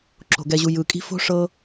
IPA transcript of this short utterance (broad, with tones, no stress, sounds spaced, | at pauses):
ǁ o̤˩ ɡ ɛ˨ ʑ u˨ j ɯ˩ kʼ i̤˦ f o̤˥ ʂ ɤ˦